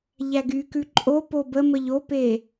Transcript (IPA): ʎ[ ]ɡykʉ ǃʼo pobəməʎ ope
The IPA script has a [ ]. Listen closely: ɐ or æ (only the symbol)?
æ